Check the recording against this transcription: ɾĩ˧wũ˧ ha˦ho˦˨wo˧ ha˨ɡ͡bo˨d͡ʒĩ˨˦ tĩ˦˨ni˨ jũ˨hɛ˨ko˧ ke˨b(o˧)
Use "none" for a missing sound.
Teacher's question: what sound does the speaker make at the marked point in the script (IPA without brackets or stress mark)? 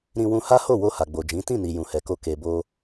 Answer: o˧